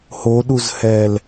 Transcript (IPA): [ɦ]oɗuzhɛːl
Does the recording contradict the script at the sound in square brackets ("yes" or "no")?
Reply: yes